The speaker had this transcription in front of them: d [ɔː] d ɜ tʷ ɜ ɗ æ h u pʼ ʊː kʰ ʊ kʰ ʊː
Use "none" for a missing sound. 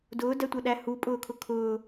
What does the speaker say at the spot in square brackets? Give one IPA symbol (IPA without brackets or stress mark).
ʊː